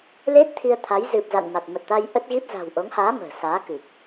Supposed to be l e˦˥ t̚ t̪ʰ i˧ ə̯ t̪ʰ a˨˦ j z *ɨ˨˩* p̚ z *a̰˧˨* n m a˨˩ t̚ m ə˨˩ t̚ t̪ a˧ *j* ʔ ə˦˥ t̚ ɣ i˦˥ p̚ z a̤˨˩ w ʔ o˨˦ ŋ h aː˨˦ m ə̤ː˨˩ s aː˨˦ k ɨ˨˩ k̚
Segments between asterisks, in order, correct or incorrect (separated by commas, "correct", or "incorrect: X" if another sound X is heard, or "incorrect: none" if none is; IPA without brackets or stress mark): correct, correct, correct